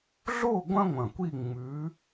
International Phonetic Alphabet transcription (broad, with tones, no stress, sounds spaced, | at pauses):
ɮ o˥˧ ɡʷ ɐ̃˥ ŋʷ ɐ̃˨˩ kʷ i˥˧ ŋ͡m ʉ˧˥